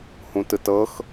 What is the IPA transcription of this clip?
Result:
hũtɯtɤx

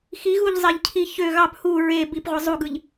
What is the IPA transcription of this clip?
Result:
xiɣuʎ zˤeʎcʰiçø ɣɑp hu ɹe bipʁʷɯ zˤuɡɯʎ

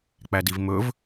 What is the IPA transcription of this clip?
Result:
k͡pædivmɵv

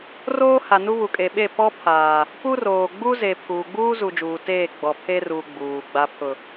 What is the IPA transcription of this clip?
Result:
roː˦ha˨nu˦ βu˨kʼe˨ ɓe˦˨ pɔ˦pʰaː˨ | pu˦roː˨ ɡ͡bu˦ze˨ pʰuː˨ɡ͡buː˦zu˨d͡ʒuː˨ teː˦˨ɡ͡bɔ˨pʰe˦ruː˨ ɡ͡buː˨ ɡ͡ba˨pʰʊ˨

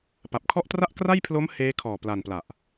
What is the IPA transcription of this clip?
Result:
pa˨˩p̚kʰɔ˥˩ʔ tra˥˩ʔkra˥˩jpʰlo˦˥m heː˦˥ kʰɔː˨˩pla˨˩n pla˨˩ʔ

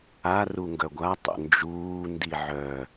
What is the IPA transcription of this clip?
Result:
a ruŋɡœɡʷa tˤo̰nd͡ʒuː ndiʕœ

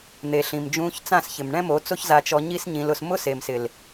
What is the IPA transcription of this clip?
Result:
n̪e˨ɬĩ˨m d͡ʒũː˧çt͡sã˦˨sçɪ˨m ɳɛ̃˦mo˨˦t͡so˦ç za˧t͡ʃɔ˧ɲi˦s ɲĩ˧lʊ˧s mʊ˦se˨msɪ˨l

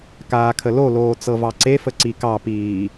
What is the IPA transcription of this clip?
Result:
kaːkʰəloloː t͡sɤvɑǀefə ǀikɑpiː

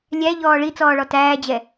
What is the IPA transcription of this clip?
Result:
lʲæʎɔː ɭit͡sɔːɭɔ tæːd͡ʑɛ

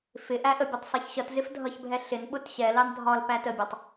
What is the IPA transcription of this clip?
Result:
fɪ ʔæʔəbʲətˤ sˤɛçɕʌtzɪf dʱʌçbʱɛ ɬɪn ɓʊtɕɛlɑn dʱɒl pætəbʲɑtˤ

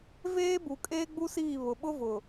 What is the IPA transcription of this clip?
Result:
veː˦bu˨ kʼeː˦ɡ͡bu˦siː˦˨ βʊ˨ɓʊ˦vʊ˨

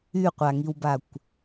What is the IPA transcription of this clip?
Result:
yqʷaŋiwbakʷ

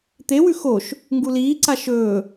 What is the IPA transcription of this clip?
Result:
t̪ewʉ xoʃ | ŋɡuliː ǀaʃɵː

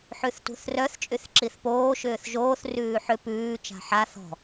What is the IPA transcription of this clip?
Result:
ħʉθtṳθrœθ t͡ʃʼyθǁiθpoː ʃʏːθʒoːθ rʉːħʏ pʉː t͡ʃa̤ħa θɔ̤

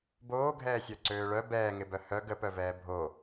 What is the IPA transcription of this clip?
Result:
boːɡʱɛːsʲœ ǀøːɭœ bɛːŋɪbœ hœ ɡəpœvɛː bʱo

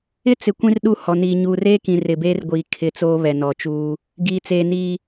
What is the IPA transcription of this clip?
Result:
ɪ˦t͡sɪ˨ kʷĩ˦rɗu˦˨ hɔ˨niː˨ ɲuː˨reː˦kĩ˨ rɪ˨beː˦rɡʷiː˨ kʰɪ˨ t͡soː˦βɛ˨nɔ˨t͡ʃuː˦ | ɡiː˨t͡seː˨niː˨

